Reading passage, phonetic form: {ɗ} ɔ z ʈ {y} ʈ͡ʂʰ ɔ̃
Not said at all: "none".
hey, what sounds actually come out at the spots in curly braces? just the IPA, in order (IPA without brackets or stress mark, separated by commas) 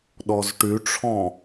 ɗ, y